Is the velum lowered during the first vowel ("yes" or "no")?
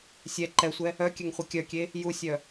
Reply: no